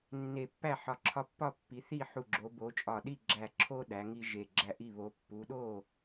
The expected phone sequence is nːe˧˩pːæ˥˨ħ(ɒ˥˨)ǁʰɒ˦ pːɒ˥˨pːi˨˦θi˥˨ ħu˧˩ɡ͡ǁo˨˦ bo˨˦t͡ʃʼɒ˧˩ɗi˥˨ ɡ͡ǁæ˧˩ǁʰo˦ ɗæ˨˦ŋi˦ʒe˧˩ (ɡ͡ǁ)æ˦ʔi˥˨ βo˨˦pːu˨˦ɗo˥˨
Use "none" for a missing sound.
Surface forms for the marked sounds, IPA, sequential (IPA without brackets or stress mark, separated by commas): ɒ˧˩, ɡ͡ǁ